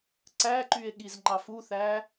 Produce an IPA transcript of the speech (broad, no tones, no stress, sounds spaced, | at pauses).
ǀ æ ǃ y e̯ ɠ i z ŋ͡ǃ ɑ f u θ æ